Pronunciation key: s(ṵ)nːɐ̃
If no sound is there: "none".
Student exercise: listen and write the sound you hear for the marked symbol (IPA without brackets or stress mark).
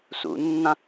ṵ